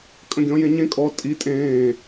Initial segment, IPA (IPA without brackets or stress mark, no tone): kʼ